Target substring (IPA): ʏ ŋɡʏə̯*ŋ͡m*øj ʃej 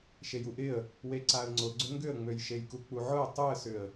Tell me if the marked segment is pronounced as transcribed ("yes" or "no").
yes